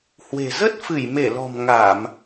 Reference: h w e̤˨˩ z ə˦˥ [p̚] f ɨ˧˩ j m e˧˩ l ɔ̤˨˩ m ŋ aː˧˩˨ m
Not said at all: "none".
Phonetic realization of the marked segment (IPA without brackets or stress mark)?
t̚